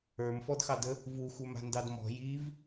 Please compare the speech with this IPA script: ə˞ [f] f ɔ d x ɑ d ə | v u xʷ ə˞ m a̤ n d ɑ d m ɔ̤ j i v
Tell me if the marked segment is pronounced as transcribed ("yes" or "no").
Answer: no